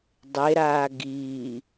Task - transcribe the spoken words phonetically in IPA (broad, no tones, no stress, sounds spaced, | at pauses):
dˤ e ɾ aː ɡ iː